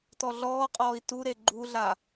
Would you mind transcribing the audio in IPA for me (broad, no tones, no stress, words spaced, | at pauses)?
tɔɮɔːqʼɔːi̯ tuɾe ɡ͡ǃuɮa